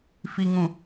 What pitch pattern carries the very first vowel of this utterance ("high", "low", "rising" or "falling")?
low